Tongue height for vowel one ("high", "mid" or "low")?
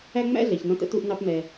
low